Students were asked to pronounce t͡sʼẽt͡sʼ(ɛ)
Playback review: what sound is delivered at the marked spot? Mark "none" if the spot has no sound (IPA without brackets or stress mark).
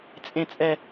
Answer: ɛ